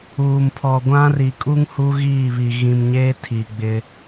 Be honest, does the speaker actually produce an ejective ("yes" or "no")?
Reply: yes